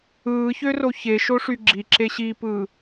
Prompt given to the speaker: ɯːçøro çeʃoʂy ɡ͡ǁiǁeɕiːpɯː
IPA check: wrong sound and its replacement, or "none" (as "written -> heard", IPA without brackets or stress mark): none